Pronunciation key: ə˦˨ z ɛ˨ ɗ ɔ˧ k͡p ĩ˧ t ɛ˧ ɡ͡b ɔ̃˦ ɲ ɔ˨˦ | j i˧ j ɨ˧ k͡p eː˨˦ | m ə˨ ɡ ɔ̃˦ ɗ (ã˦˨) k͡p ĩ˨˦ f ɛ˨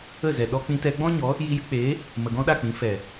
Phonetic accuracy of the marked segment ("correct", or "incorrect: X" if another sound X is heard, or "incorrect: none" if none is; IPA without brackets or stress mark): incorrect: a˦˨